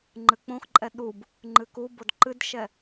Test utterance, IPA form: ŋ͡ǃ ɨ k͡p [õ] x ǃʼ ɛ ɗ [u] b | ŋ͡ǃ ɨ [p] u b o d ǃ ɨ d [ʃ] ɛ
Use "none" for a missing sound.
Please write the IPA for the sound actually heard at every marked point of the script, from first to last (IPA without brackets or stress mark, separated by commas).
õ, u, k, ʃ